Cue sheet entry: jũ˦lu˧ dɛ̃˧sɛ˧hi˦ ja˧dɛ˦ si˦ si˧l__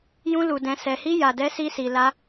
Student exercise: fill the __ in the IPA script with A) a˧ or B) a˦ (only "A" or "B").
B